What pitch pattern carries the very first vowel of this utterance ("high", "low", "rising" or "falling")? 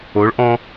rising